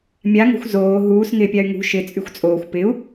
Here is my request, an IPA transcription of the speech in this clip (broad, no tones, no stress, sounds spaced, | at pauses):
mʲ a ŋ o̤ xʷ z oː ɦ uː s ŋ ɪː pʲ a y̯ ŋ ṳ ʃ ɪ t͡sʼ y xʷ t͡sʼ oː xʷ p ɪ u̯